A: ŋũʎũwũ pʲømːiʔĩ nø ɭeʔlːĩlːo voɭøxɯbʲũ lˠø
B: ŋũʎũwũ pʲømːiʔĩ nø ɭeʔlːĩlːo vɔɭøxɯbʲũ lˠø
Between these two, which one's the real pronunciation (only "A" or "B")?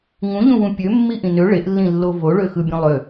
A